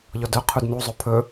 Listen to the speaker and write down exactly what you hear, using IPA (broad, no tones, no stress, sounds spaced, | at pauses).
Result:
ʎ ɔ d œ qʰ u d n u zˤ ɵ pʰ ɵ